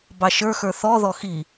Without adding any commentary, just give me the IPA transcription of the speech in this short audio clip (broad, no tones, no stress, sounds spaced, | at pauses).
b ɑ ʃ ə˞ x ə˞ θ ɔ ð ɔ x i